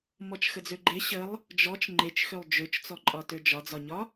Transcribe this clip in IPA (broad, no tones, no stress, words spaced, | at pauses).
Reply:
mɔt͡ʃxəd͡zøɡ͡ǃe ɕəlˠ | d͡ʒɔt͡ʃ ŋ͡ǃet͡ʃxølˠ d͡ʒøt͡ʃt͡sɔǃʼɒ tød͡ʒɒd͡zɒɲɒ